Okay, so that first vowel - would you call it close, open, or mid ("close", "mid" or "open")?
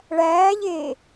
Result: open